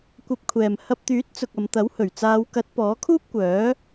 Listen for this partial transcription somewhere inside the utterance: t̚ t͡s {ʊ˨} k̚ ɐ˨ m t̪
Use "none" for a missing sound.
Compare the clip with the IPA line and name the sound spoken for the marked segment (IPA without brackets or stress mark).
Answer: ʊ˨